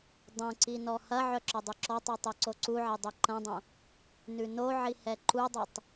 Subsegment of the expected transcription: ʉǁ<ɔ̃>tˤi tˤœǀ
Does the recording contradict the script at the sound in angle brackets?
yes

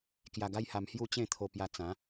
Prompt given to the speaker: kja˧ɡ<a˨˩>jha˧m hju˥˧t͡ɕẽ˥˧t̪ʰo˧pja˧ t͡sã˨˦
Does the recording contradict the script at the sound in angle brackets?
yes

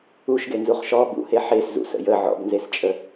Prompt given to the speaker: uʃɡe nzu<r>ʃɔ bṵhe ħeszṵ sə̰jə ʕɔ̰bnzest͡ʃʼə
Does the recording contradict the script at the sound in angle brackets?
yes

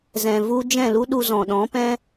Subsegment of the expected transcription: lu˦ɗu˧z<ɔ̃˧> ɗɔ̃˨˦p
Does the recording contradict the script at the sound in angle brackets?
yes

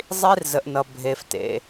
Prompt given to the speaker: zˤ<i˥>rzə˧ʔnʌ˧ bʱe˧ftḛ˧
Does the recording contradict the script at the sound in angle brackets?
no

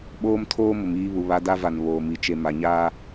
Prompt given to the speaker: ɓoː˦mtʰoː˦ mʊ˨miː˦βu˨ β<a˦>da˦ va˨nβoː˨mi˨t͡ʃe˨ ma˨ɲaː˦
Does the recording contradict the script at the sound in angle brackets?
no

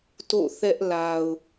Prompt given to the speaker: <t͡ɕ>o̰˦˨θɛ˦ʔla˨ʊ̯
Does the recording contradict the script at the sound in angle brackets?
yes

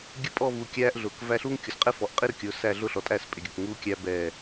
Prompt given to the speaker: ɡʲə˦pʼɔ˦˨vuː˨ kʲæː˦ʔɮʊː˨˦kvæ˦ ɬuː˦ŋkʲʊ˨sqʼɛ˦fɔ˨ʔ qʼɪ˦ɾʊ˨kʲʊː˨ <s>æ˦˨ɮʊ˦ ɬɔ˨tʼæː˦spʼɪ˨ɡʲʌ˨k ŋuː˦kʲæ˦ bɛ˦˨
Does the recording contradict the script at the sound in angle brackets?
no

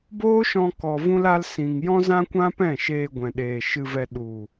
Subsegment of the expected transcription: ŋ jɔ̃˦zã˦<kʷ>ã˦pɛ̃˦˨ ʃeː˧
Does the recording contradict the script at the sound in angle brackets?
no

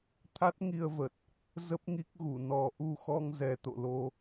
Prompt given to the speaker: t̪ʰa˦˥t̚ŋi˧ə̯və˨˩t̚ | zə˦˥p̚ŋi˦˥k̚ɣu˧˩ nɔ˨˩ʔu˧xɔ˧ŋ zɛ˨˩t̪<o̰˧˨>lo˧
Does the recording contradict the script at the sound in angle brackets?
no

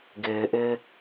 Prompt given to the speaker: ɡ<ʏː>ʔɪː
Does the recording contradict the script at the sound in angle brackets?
yes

